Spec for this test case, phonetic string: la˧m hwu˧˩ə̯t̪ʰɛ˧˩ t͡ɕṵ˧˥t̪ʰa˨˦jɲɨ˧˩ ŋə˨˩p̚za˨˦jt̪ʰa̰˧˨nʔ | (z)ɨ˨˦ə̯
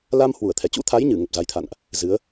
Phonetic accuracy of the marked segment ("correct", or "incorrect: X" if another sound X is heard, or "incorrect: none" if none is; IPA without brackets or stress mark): correct